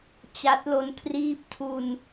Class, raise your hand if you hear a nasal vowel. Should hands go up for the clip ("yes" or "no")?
no